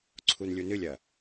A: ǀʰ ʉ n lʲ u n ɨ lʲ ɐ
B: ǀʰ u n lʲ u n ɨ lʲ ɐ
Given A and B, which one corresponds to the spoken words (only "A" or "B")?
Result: B